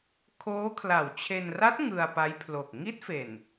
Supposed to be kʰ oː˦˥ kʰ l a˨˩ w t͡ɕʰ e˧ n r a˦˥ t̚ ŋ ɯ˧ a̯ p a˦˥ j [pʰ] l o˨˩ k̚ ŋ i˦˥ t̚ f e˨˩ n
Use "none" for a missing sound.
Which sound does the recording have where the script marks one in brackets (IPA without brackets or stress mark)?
pʰ